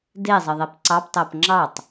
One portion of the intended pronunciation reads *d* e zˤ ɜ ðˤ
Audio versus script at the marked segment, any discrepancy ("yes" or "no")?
no